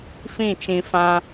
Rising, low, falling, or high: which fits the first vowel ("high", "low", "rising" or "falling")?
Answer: falling